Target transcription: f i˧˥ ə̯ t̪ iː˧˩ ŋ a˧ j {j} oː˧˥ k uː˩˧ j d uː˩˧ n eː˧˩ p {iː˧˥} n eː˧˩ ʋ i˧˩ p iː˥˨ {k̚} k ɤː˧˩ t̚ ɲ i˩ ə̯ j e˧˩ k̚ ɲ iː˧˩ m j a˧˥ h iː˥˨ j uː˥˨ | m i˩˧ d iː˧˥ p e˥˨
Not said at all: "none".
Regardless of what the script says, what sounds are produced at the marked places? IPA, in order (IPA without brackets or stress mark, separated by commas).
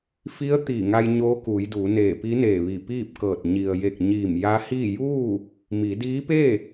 ɲ, i˧˥, p̚